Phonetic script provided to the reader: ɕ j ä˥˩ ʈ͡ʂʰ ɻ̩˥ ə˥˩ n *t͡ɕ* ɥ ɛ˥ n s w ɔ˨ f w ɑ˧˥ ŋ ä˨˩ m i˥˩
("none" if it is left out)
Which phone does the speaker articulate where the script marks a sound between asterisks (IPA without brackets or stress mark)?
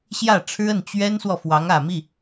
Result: t͡ɕ